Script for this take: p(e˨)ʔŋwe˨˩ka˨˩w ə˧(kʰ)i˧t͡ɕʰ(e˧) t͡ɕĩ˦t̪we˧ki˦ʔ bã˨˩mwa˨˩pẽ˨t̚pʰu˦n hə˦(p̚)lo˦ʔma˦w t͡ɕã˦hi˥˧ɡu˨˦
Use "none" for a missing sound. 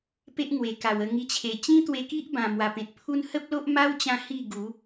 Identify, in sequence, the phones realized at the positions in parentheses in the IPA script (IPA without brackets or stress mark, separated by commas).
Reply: e˦, ŋ, e˨˩, p̚